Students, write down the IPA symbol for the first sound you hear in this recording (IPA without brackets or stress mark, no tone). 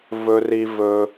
v